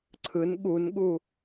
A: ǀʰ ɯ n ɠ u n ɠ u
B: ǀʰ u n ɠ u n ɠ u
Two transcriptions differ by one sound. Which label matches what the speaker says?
A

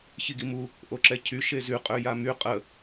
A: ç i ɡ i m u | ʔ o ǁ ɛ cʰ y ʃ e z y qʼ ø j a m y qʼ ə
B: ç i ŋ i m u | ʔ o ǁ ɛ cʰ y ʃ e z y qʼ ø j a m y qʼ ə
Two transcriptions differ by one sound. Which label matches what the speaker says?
A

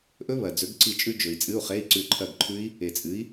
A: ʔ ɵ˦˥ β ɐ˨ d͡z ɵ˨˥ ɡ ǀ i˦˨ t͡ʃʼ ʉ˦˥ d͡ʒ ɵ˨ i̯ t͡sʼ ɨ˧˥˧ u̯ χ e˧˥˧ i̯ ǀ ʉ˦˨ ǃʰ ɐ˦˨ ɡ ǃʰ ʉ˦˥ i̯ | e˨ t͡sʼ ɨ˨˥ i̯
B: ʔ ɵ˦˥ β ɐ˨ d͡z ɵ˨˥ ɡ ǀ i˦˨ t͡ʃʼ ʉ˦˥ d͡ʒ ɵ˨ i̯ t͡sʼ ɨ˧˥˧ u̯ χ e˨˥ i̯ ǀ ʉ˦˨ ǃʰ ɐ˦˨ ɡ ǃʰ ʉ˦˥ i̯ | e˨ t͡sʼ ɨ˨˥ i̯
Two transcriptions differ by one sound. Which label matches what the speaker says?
A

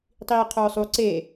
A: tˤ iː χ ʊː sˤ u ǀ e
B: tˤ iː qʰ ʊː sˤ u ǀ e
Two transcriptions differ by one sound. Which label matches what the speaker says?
B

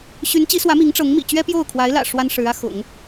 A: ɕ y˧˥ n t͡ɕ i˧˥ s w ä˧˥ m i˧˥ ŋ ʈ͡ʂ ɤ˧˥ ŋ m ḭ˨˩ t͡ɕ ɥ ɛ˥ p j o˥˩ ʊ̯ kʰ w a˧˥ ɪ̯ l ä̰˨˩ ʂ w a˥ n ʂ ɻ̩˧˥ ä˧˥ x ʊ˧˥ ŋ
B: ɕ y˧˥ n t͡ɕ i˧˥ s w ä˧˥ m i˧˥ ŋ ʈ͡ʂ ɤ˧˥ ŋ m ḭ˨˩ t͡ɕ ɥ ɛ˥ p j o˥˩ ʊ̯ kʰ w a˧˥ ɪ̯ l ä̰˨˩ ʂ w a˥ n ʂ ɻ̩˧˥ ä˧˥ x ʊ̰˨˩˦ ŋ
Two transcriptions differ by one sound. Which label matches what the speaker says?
B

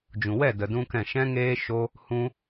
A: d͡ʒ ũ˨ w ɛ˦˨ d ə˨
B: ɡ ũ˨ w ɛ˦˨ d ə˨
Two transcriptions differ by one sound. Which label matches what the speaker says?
A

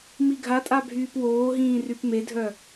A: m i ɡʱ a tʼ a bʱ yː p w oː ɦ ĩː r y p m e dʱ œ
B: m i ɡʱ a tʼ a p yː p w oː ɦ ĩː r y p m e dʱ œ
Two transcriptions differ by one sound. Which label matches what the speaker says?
A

